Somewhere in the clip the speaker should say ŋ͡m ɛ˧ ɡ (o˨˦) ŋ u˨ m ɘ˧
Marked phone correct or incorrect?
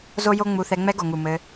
incorrect